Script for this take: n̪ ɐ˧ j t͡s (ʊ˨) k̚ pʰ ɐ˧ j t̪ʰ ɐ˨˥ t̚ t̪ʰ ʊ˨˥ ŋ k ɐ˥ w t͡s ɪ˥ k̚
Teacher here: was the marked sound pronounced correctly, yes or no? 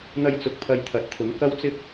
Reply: yes